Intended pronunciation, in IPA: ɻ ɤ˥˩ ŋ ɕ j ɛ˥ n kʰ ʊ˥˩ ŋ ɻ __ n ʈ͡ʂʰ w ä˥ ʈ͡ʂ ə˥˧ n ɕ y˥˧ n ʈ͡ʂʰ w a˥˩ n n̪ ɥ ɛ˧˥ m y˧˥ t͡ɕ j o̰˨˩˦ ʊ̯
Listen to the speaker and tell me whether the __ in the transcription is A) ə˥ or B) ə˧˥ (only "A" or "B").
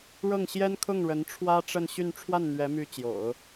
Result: B